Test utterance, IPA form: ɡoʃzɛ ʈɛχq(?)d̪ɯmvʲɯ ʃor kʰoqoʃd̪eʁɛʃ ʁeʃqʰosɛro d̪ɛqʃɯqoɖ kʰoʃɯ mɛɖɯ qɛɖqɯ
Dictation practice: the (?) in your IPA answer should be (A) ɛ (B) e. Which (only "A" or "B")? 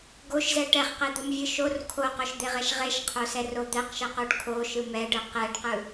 B